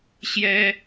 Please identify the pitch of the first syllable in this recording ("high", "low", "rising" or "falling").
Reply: high